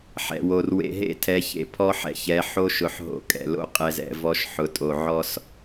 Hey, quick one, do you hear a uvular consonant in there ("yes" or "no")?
yes